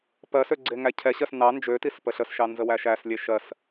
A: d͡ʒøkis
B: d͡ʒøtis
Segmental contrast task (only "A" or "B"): B